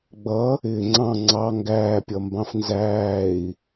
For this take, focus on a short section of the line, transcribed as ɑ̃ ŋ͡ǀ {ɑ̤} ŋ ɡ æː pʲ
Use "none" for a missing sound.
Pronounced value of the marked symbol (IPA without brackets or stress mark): ɑ